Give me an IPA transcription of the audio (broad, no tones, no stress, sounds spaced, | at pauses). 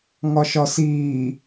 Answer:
ŋ ɒ ʃ ɒ s iː